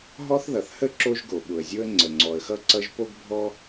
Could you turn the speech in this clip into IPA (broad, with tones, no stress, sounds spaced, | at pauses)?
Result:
ɦ ɔ˥ θ ð ʌ˩ θ h ə˥ ǁ o˥ ʒ ɡ o˩ ɓ ʊ˩ ə̯ zʲ o˥ ə̯ ŋ͡ǀ ə˩ ŋ͡ǀ ɔ˩ ə̯ x ʌ˥ ǀ ʌ˥ ʒ p o˥ ɡ bʱ ɔ˥